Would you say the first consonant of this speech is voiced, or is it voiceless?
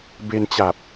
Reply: voiced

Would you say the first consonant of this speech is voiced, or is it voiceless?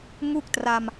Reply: voiced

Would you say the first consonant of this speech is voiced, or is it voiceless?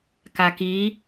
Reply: voiceless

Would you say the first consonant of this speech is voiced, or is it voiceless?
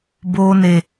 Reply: voiced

